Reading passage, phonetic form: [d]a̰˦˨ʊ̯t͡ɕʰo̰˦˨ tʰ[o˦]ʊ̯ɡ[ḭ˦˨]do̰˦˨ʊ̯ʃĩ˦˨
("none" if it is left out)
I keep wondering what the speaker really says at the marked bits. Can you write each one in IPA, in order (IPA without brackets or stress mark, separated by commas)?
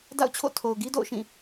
d, o˨, i˦